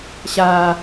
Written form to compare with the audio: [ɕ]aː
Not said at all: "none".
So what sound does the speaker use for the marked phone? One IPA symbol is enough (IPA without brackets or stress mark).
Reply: ɕ